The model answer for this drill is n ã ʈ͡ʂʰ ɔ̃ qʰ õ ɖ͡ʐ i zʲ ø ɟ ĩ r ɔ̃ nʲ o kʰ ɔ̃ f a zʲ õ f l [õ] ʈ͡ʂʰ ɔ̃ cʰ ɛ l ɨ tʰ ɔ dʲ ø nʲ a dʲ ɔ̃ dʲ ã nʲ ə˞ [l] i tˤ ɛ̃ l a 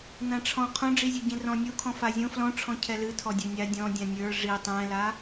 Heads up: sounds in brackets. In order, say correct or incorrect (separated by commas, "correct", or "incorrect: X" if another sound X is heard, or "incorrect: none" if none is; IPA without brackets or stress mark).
incorrect: ɔ̃, incorrect: ʐ